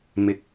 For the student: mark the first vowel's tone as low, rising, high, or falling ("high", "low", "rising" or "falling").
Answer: rising